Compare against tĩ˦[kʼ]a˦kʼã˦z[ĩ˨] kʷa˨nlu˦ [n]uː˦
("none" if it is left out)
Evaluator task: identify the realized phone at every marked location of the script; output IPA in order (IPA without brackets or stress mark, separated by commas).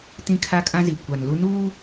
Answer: kʰ, i˨, n